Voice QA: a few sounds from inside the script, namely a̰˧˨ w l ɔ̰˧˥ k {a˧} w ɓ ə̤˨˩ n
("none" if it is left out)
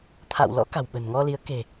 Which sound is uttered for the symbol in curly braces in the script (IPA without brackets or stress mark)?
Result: a̤˨˩